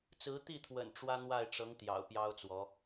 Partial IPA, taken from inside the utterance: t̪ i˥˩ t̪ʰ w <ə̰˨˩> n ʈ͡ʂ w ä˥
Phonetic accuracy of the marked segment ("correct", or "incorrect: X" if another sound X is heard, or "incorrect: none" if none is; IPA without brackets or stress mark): correct